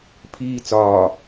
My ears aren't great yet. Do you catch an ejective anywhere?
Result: no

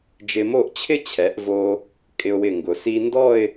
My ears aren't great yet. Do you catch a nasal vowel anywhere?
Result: no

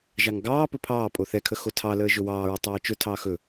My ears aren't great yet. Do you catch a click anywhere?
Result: no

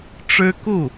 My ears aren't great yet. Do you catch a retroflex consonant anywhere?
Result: yes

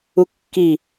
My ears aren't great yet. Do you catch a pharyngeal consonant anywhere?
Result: no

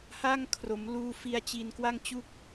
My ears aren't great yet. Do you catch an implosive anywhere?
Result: no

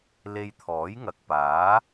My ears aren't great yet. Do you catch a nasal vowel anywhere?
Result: no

